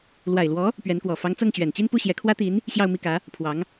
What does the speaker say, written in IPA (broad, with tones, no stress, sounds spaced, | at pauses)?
l w a˨˩ ɪ̯ l w ɔ˧˥ | p ɥ ɛ˧˥ n k w ɔ˨˩ f ɑ˧˥ ŋ t͡s ɤ˥˩ ŋ t͡ɕ ɥ ɛ˨˩ n t͡ɕ i˥˧ n p u˥˩ ɕ j ɛ˧˥ kʰ w ä˥ t̪ i˧˥ n | ɕ j ɑ˥˧ ʊ̯ m i˥˩ k ä˧˥ | pʰ w ɑ˧˥ ŋ